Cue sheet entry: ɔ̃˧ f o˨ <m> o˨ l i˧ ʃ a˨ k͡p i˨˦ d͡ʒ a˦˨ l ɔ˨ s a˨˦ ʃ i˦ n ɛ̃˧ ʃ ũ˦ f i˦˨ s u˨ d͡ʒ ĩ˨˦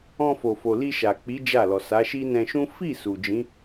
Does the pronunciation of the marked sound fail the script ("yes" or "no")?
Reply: yes